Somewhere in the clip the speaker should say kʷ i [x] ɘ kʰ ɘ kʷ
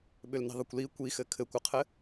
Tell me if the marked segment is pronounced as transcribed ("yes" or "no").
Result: yes